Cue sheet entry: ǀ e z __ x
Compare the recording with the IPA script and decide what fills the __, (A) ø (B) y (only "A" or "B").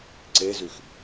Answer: B